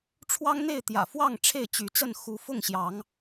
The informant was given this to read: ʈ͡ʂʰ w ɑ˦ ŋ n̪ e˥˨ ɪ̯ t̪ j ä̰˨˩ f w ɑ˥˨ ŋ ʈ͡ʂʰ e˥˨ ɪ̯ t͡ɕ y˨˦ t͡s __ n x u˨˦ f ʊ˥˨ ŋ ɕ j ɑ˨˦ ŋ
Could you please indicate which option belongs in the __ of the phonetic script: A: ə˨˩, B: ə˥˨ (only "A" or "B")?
B